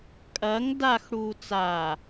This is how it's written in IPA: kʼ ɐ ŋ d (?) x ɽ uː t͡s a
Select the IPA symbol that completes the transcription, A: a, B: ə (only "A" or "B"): A